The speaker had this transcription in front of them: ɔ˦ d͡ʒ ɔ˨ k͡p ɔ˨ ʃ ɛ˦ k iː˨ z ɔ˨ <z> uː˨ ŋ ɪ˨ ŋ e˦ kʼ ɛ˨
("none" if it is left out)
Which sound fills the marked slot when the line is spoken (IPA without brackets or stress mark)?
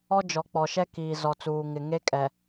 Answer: t͡s